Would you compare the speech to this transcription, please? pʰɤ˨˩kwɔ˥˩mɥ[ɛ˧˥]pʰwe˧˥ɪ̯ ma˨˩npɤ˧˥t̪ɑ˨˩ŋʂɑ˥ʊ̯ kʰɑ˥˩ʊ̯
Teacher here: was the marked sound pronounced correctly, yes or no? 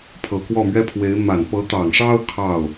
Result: no